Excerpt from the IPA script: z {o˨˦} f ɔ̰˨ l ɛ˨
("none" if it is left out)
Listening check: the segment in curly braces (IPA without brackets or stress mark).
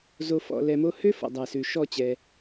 o˨